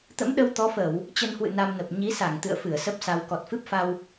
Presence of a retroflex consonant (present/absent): absent